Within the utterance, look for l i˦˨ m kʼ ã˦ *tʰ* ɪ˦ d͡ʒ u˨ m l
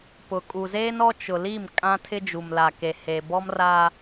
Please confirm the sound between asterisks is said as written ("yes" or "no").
yes